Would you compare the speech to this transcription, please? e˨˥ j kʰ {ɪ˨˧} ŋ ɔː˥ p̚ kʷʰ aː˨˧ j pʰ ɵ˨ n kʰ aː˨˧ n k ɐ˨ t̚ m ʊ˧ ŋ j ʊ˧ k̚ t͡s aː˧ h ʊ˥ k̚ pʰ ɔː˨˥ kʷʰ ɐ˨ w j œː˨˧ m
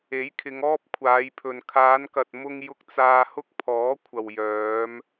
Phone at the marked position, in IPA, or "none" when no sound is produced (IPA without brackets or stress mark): ɪ˨˧